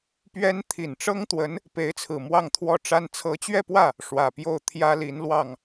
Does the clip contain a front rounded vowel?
no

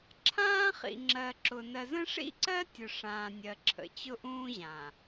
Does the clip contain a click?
yes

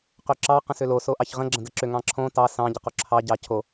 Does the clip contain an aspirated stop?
yes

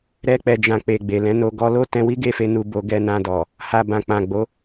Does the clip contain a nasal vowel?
yes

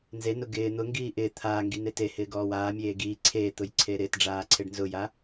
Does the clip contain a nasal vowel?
no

